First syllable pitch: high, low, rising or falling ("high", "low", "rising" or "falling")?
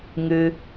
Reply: high